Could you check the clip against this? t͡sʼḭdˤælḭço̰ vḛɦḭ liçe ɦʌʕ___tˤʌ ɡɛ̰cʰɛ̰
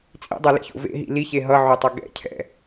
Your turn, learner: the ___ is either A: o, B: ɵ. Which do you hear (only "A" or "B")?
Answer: A